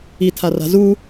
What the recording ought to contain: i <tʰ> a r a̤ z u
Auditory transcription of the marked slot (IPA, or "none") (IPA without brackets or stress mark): tʰ